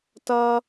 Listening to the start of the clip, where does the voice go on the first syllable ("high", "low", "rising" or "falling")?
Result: high